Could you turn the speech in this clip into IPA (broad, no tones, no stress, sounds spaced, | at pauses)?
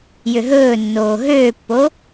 j ʏ ɦ ɵː nː oː ɦ øː pː o